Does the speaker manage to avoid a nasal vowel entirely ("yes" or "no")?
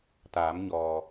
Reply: yes